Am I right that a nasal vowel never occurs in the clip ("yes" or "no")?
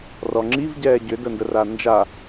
yes